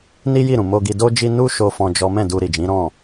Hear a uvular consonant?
no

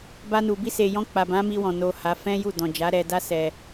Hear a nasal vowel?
yes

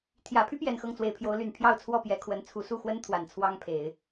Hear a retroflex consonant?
no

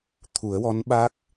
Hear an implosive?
yes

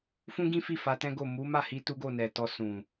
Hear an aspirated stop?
no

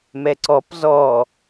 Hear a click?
yes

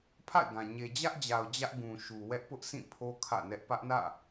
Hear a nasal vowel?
yes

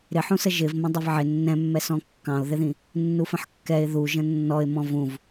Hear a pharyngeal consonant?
yes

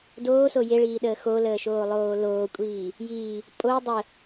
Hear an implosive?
yes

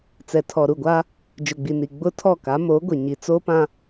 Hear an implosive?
no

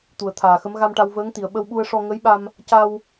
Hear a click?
no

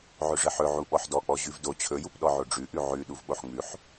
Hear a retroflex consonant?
yes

